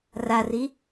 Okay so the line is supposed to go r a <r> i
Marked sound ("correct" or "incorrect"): correct